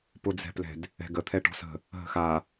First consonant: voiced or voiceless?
voiceless